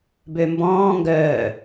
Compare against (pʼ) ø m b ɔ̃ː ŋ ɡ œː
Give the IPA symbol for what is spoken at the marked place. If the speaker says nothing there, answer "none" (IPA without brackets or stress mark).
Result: b